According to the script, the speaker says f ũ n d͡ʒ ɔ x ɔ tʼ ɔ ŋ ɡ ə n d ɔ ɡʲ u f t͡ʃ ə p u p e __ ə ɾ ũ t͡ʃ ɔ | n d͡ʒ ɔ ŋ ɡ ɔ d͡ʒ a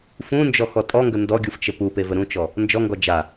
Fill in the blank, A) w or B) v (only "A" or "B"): B